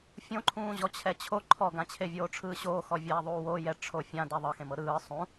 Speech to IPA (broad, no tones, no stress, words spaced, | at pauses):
fʲõǃʰũː ʑɔt͡ɕʰɛt͡ɕʰo ǃʰɔɡãt͡ɕʰe vʲoːʈ͡ʂʰɯːɕoːxɔ vʲɛːðˤuːwo jɛ ʈ͡ʂʰofʲã deðˤɤxẽmɤ ɾɯː sˤũ